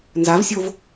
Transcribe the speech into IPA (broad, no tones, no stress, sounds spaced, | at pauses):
n z a v sʲ o v